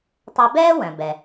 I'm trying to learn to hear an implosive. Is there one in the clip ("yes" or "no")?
no